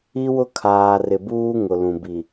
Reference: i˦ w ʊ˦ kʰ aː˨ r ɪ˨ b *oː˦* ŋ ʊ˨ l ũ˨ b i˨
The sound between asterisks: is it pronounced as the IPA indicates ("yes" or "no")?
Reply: no